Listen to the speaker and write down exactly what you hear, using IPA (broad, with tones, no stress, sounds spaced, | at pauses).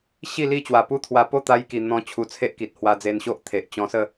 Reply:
ɕ i˥˧ l i˥˧ t͡ɕ w a˨˩ p u˦ t̪ʰ w a˧ p o˥˧ t̪ a˧ j k i˨˩ n̪ ɔ̃˧ t͡ɕʰ u˧ t͡sʰ e˦ ʔ k i˨ t̚ h w a˧ d͡z e˧ n ɕ o˦ ʔ t̪ʰ e˨ ʔ t͡ɕ ɔ̃˧ s ə˥˧